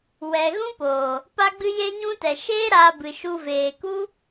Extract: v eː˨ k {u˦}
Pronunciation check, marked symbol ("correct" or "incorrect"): correct